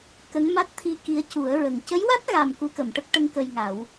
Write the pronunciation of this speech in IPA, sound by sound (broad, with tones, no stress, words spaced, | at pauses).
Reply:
kə˧˥ŋma˦˥t̚t̪ʰi˧ki˧˥ə̯ cu˨˩˦ə̯ɹə˨˩ŋ cə˧˥jwa˦˥t̚ɣa˨˩m ku˧kə˨˩˨mʈə˦˥k̚ʈə˧˥ŋ kə˧jŋa˨˩˦w